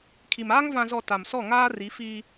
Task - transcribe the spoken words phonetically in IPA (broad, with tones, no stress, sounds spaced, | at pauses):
kʰ i˨ m aː˦ ŋ v ã˨ z ɔ˨ t a˨ m s ɔ˦˨ ŋ aː˦ r i˨˦ f iː˦